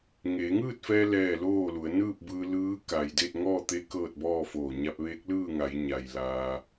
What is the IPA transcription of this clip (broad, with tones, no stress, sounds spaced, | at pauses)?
ŋ eː˩˧ ŋ ɯː˥˨ t̚ f ɛː˧ l ɛː˥˨ l oː˥˨ l u˩˧ ə̯ n ɯː˥˨ p̚ b ɯː˧ l ɯː˧˥ k a˩ j d e˥˨ t̚ ŋ ɔː˥˨ t̪ e˧˥ k ɤː˥˨ t̚ b ɔː˥˨ f oː˧˩ ɲ a˧ p̚ ʋ eː˧˥ k̚ l ɯː˥˨ ŋ a˩˧ j ɲ a˩ j l aː˧